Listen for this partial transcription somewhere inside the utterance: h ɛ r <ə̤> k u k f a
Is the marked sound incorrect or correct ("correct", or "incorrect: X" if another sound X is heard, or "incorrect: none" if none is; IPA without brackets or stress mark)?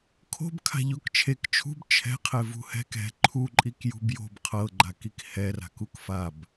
incorrect: a̤